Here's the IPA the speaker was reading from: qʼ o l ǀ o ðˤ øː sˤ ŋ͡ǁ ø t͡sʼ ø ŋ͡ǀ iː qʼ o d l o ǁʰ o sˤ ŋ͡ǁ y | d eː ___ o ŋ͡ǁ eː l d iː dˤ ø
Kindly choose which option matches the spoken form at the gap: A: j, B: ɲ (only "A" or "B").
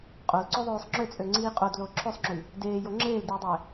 A